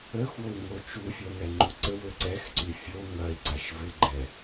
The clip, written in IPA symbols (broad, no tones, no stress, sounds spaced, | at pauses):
ə x w o u̯ ŋ o t͡ʃ u fʲ ɐ ŋ ɛ ŋ͡ǃ u ǀ ə w ø ǀ ɛ x ǀ y fʲ o ŋ ɐ i̯ ǀ a ʃ v ɪ ɡ͡ǃ ɛ